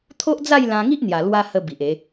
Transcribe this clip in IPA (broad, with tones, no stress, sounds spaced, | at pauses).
t̪ʰ o˦ ʔ d͡z a˥˧ j l ã˧ ŋ i˦ ʔ n̪ j a˨˩ l w a˧ h ə˧ b i˨ ʔ e˨˦